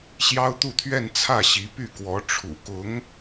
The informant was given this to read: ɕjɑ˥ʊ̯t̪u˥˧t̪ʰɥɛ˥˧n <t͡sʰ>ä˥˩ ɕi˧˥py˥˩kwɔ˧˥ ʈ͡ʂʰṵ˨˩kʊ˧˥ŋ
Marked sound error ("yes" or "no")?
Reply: no